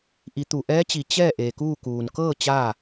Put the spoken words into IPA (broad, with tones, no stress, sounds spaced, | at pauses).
ʔ i˩˧ t̪ u˩ ʔ ɛː˧˥ t͡ɕ i˩ t͡ɕ ɛː˥˨ ʔ eː˩ k uː˥˨ k uː˩ n k ɤː˥˨ t͡ɕ aː˥˨